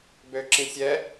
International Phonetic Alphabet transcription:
bøǁĩsʲɛ

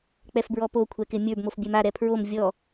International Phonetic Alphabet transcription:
k͡pɛfbɹɔpo kʷʰɛkɪmʲə˞b mofbʲɛma ɾɛpʰɹom vʲɔ

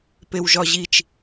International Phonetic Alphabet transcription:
pewʒɒʑit͡ʃ

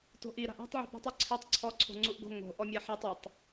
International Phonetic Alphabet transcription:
to̤ʔi ɾa̤ʔa̤tˤ ʕṳpṳtˤ ɔǀʰɛtˤ ǀʰɔ ǀʰo̤ŋ͡ǀuʔɡo̤ ŋo̤ ʔɔmʲaħetˤ ʊtˤ

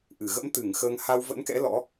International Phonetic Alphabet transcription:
ʔɨ˧˩ ɣə̰˧˥mt̪ɨ˧˩ŋ xəː˧ŋ ha˧w və̰˧˥nkɛ̰˧˥ lɔ̰˧˥

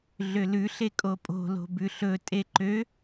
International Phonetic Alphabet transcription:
ɮølʉɬe kʼopʼo̤lo̤ bʉɬɵ tʼeǃø

